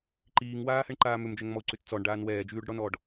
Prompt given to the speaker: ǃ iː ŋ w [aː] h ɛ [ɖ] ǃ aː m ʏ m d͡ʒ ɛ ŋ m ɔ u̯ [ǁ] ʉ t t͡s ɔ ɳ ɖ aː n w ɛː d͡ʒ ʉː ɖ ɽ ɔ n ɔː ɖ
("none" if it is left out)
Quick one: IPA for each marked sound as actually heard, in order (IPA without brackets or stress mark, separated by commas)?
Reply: aː, ɳ, ǀ